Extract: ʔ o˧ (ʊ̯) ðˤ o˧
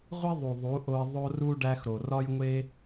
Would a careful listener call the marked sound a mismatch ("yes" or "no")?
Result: yes